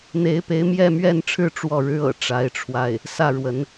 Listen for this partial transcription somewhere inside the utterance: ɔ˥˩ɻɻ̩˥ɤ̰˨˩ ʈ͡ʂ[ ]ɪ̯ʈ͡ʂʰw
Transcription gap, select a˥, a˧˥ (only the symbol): a˧˥